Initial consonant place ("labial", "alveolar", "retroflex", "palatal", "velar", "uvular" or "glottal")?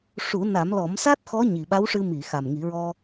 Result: retroflex